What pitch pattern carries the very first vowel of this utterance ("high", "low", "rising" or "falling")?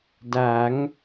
rising